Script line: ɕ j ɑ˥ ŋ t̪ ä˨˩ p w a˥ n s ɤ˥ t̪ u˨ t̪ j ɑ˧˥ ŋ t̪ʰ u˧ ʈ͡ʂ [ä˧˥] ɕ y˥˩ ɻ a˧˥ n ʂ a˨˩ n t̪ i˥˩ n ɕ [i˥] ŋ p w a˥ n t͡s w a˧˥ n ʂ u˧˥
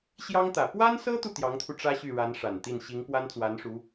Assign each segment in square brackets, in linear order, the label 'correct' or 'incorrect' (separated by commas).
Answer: incorrect, incorrect